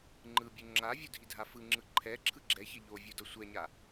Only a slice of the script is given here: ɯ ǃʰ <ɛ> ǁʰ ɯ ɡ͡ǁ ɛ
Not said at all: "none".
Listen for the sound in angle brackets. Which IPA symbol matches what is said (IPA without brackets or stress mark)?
ɛ